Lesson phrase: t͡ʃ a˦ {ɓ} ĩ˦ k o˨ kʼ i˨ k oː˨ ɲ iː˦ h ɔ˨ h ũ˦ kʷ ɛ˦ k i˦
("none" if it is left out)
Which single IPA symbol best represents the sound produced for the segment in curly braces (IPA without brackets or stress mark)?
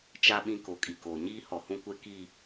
ɓ